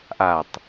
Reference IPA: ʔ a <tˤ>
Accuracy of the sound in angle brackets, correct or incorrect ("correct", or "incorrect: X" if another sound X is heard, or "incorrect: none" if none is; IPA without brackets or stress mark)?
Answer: correct